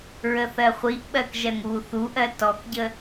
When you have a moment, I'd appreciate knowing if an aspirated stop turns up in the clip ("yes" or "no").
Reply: no